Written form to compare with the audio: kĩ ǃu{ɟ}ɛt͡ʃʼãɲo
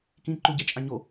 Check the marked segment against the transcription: correct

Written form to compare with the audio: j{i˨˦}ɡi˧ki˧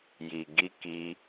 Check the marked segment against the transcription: incorrect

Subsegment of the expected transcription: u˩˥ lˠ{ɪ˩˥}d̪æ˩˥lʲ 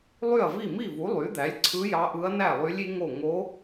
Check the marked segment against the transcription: incorrect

